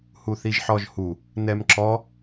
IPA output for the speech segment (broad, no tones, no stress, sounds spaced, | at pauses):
h u θ i ʒ ħ ɔ ʒ h u | n ɛ m ǁ ɔ